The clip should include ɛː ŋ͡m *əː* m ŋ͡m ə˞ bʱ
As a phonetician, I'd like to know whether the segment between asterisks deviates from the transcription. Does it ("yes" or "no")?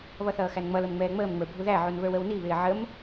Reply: no